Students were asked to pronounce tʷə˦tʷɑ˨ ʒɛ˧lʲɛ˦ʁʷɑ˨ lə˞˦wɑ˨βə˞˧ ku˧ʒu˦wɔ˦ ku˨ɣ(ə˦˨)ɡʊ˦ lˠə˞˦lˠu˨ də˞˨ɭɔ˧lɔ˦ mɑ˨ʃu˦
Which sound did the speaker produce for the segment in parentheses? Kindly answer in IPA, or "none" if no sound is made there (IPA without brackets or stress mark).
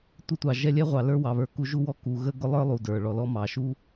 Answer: ə˦